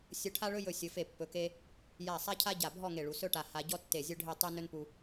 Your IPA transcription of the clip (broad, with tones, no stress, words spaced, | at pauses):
sʲɵ˧ʈʰa˥ɭɵ˥jɵ˧˩ sʲɵ˩˧fe˧˩pːɵ˩˧ke˧ | ja˧˩sˤa˥cʰa˥ ɟa˧˩bʱɔ˥˧ŋe˧˩ɭu˩˧ sɵ˥ʈa˧ ha˧ ɟɔ˥tːe˧˩zʲɵ˥ɖʱe˥˧ tˤe˥nɵ˥npu˧